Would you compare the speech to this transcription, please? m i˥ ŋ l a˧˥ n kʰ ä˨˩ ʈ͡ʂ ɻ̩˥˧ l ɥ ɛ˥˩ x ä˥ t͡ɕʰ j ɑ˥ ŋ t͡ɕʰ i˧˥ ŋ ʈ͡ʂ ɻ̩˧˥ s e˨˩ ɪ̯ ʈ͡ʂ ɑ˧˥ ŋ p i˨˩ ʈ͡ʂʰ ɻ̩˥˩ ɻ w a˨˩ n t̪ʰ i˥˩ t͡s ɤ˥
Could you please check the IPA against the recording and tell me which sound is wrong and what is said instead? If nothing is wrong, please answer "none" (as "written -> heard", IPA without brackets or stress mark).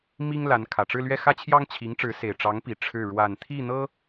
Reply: t͡s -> n̪